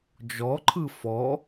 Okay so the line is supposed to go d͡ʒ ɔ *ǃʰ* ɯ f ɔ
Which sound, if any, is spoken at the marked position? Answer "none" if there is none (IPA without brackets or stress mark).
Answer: ǃʰ